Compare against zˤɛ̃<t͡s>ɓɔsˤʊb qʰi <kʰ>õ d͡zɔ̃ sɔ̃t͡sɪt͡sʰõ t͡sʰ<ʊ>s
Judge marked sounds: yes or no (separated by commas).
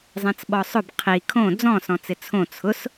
yes, yes, yes